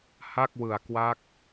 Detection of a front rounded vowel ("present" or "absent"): absent